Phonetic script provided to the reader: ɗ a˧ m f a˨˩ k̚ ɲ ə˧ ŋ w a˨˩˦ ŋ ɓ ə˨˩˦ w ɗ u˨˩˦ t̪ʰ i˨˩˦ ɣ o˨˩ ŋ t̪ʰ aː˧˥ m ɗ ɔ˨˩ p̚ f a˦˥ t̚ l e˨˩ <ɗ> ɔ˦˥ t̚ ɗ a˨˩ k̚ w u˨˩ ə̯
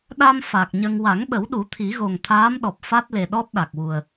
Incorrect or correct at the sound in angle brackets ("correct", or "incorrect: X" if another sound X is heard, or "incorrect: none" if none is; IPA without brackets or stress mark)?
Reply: correct